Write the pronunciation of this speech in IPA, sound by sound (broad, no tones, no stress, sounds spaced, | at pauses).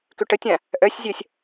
k ø ʈ ə tʲ ã | ʔ œ sʲ zʲ œ sʲ